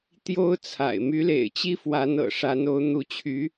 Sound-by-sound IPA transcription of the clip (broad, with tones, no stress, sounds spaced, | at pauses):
t̪ j o˥ ʊ̯ t͡sʰ a̰˨˩ ɪ̯ m y˧˥ l ḛ˨˩ ɪ̯ t͡ɕ i˥ f w a˧˥ n ɤ̰˨˩ ʂ a˧˥ n o˧˥ ʊ̯ n̪ u˧˥ t͡ɕʰ y˧˥